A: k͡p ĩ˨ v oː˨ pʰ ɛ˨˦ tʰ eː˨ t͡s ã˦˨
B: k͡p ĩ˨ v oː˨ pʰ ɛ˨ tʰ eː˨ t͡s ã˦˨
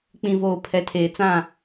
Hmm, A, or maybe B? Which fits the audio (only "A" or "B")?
A